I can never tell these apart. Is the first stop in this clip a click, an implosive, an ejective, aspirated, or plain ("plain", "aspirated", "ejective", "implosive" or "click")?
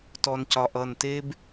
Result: plain